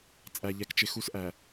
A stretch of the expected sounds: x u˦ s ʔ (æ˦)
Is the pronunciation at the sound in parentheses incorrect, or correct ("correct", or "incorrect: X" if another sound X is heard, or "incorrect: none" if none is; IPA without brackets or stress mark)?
incorrect: æ˨